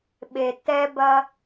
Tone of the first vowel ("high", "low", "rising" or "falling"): low